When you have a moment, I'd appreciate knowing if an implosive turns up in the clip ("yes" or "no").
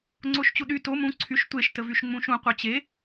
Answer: yes